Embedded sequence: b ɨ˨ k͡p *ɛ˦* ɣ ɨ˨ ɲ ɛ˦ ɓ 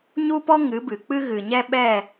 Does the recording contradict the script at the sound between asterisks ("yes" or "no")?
yes